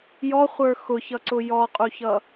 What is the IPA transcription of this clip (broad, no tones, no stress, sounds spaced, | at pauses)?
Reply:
j ɔ χʷ ə˞ x ʊ ç ʌ ǀ ʊ j ɔ qʼ u ç ʌ